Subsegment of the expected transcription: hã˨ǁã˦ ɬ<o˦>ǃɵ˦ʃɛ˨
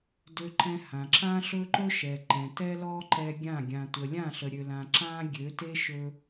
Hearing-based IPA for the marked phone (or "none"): ɵ˦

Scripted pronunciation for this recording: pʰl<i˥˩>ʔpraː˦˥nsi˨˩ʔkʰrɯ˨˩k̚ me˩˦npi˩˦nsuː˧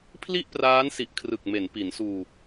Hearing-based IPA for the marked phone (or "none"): i˥˩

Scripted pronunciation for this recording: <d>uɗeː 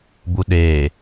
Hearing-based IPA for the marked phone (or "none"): b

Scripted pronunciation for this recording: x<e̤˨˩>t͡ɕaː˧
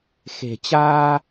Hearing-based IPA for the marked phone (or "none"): e̤˨˩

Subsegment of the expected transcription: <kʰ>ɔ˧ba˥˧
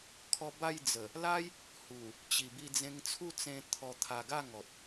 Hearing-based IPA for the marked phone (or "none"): kʰ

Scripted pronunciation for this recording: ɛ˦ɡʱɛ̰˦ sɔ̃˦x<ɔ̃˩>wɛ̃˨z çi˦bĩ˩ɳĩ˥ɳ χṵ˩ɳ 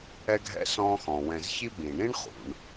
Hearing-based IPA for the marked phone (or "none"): ɔ̃˩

